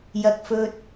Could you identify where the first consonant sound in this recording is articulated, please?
palatal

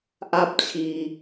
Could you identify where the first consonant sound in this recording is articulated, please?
glottal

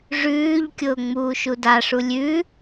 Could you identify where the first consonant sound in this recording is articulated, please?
retroflex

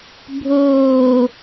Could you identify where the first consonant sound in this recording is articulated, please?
labial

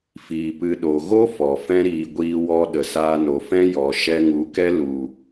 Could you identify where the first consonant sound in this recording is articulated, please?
labial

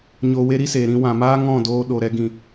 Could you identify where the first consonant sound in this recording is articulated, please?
palatal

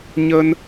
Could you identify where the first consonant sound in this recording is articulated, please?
palatal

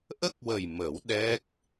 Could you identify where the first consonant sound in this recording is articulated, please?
glottal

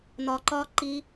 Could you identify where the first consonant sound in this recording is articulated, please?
alveolar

